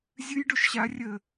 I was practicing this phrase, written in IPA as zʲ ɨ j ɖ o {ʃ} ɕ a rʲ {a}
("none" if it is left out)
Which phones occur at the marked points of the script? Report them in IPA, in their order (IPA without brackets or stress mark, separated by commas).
ʃ, ə